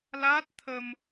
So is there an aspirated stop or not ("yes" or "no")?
yes